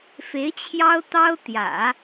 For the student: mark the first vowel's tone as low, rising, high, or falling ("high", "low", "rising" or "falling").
rising